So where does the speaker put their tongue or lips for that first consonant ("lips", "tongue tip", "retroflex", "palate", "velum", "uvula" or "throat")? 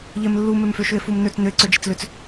palate